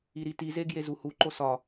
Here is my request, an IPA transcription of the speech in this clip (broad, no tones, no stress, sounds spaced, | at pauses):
i ɾ i t i z e ɡ j e z u h u ǃ o s ɒ